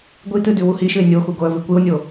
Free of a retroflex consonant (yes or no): yes